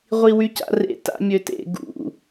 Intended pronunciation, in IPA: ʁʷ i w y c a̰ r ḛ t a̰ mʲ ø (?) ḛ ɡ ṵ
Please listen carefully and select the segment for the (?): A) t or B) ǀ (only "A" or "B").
A